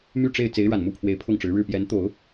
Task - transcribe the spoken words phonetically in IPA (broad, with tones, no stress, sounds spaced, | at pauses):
m y˥˧ ʈ͡ʂ e˥˩ ɪ̯ t͡s e˧˥ ɪ̯ ɻ a˨˩ n m u˥˩ pʰ w e˧˥ ɪ̯ pʰ ʊ˥˩ ŋ ʈ͡ʂ ɻ̩˧˥ ɻ ɻ̩˥˩ p j ɛ˧˥ n t̪ o˨˩˦ ʊ̯